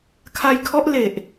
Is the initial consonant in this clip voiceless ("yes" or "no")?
yes